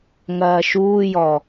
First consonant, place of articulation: velar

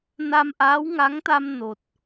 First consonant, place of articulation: alveolar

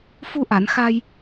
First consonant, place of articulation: labial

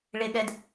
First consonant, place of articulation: retroflex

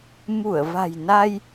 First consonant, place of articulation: labial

